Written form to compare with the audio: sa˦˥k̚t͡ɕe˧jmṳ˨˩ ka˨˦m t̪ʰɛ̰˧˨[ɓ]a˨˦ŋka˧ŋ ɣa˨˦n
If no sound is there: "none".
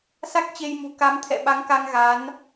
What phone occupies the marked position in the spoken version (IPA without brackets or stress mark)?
ɓ